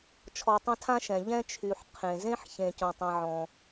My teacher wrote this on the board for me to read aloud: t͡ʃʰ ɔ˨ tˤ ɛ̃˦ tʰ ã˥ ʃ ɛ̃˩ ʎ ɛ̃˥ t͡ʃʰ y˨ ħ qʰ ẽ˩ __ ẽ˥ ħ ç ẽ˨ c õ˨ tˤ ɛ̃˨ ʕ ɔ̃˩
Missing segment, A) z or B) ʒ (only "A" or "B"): A